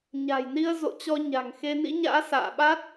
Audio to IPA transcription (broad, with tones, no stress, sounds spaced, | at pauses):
ɲ a̤˨˩ j n i˧ ə̯ z o̰˧˨ t͡ɕ ɔ˧ ɲ a̤˨˩ ŋ x e˧ n ḭ˧˥ ɲ a̰ː˧˥ s a̰ː˧˨ ɓ a˦˥ t̚